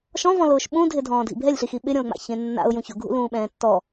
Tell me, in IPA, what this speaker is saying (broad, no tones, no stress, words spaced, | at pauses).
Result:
ʃɔ̃vɔ̃lʊːʃ ɓũdʱɪdʱɔ̃ːdʱḭ bʱɛlʲɬixi ɓɪɾʲɔ̃ʊ̯ŋ͡ma̰çẽ nːa̰ʊ̯jũ çʊɡʱṵlũːɓɛ̃ː tːɔ